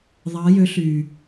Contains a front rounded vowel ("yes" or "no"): yes